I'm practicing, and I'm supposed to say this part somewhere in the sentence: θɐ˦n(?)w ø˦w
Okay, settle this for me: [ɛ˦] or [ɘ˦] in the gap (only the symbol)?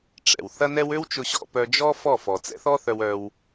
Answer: ɛ˦